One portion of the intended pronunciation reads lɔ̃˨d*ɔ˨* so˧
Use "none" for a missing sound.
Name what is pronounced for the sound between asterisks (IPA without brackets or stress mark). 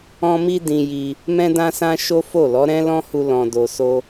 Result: o˨